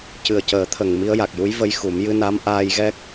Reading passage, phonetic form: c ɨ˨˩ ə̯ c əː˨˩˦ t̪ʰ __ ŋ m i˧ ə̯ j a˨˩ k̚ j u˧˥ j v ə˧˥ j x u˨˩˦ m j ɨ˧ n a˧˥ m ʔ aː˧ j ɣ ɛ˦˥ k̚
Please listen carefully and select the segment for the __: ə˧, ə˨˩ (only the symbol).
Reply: ə˨˩